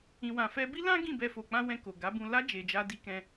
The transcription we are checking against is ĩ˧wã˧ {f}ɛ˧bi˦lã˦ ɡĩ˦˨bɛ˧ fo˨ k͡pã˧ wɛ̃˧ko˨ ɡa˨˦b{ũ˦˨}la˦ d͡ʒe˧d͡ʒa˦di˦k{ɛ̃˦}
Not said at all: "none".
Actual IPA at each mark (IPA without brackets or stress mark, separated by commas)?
f, ũ˧, ɛ̃˦